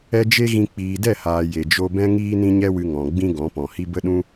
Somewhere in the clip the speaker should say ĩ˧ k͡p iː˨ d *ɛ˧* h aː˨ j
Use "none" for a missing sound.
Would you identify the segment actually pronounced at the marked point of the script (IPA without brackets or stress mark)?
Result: ɛ˦˨